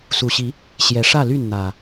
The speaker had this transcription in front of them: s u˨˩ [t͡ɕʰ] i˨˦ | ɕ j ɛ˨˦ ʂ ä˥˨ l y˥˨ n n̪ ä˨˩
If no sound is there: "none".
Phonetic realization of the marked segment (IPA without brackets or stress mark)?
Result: ɕ